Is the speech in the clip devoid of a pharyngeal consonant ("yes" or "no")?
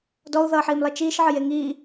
no